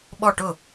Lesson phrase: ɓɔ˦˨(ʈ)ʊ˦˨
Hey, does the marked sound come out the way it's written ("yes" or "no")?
yes